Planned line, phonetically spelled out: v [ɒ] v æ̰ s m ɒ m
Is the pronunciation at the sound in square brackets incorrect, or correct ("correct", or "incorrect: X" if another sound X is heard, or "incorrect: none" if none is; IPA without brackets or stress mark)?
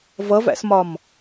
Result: incorrect: ʌ